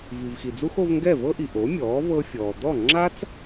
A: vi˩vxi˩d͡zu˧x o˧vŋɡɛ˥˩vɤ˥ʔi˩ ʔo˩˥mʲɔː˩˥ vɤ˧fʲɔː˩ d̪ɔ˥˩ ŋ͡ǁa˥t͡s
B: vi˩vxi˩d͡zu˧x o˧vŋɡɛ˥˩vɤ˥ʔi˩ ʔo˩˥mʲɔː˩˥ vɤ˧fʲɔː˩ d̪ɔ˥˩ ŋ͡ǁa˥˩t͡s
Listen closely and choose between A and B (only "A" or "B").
A